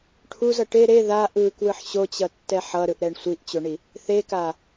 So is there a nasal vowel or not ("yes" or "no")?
no